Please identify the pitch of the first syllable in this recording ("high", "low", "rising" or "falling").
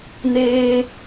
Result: high